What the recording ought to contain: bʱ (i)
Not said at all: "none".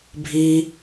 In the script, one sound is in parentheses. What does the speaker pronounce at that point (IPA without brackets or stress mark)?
i